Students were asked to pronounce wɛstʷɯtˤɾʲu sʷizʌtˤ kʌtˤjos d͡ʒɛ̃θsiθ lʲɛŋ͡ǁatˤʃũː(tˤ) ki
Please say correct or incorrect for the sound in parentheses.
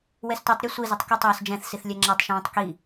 correct